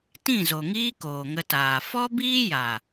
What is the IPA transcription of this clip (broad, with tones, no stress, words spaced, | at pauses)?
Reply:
tĩ˦˨zo˨ŋiː˦ koː˨ŋə˧taː˨ fɔ˦biː˦ja˨